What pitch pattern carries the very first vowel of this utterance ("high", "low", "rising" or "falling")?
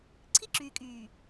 high